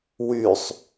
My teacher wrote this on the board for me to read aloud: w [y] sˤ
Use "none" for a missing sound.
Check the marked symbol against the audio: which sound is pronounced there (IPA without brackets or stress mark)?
y